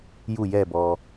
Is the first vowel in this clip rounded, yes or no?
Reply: yes